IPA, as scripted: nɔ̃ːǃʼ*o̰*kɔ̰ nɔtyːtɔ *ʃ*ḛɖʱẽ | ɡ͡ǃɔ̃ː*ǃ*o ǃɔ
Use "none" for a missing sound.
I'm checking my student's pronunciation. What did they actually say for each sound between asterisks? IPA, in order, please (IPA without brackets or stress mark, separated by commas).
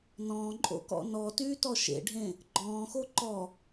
o̰, ʃ, x